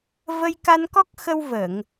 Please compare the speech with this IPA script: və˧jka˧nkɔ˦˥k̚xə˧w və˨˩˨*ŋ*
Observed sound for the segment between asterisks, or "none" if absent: ŋ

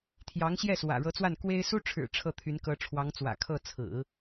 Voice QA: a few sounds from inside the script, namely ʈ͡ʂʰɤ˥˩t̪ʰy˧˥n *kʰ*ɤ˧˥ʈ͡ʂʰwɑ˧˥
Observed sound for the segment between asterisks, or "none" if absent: k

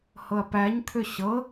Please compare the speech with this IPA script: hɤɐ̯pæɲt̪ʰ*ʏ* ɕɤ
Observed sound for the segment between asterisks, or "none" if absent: ʏ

